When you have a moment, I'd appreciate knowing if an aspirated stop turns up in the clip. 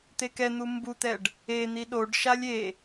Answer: no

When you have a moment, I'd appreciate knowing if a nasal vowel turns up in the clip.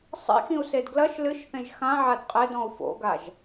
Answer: yes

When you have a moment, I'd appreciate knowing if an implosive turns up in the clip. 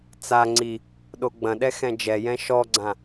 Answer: yes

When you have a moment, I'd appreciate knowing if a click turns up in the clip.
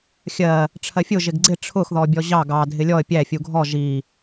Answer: yes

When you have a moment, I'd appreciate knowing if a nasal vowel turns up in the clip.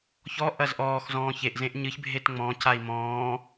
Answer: yes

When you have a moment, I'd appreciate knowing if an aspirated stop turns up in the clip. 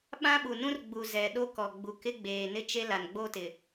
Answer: no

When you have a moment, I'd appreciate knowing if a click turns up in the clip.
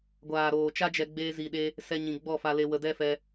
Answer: no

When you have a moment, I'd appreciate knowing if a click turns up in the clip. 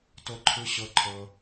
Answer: yes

